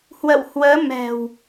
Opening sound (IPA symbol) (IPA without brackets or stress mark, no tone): h